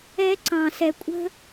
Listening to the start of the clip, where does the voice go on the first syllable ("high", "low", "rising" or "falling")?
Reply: high